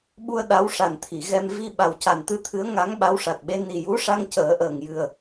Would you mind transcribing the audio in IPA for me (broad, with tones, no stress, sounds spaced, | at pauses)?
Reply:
ɓ u˧ ə̯ ɗ a˧˥ w ʂ a˨˩ n t̪ʰ i˨˩˨ ɣ ɛ˧ m v i˧ ɓ a˨˩ w c a˨˩ n t̪ ɨ˧ t̪ʰ ɨ˧˥ ə̯ ŋ a˧˥ ŋ ɓ a˧˥ w ʂ a˨˩ t̚ ɓ e˧˥ n i˨˩ j u˧˥ ʂ a˧ ŋ c əː˨˩˦ ʔ əː˨˩ ŋ j ɨ˨˩ ə̯